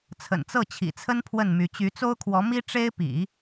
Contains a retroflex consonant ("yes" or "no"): yes